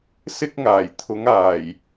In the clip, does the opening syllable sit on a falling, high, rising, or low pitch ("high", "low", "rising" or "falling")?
high